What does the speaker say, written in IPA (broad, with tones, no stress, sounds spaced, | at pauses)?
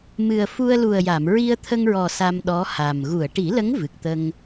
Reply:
m ɨ˨˩ ə̯ f u˧ ə̯ l u˨˩ ə̯ j a˨˩˨ m ɹ i˧ ə̯ t̪ʰ ə˧ ŋ ɹ ɔ˨˩ s a˧ m ɗ ɔ˧˥ h a˨˩ m ɣ u˨˩˨ ə̯ ʈ i˨˩˦ l ə˧˥ ŋ v ɨ˨˩ k̚ t̪ ə˧ ŋ